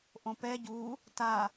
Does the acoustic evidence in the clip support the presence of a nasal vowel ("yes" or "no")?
yes